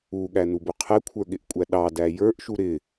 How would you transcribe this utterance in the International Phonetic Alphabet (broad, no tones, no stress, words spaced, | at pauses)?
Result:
uɠænubʊ qʰɛkʷʰə˞ɠɪʔkʷʼæ ɗɑdæ jə˞ʔʃu ɾɪ